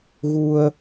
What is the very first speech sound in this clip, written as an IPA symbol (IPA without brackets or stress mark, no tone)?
ɣ